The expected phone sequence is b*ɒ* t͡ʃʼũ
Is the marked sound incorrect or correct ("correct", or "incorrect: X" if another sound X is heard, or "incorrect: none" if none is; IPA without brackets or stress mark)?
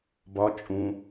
correct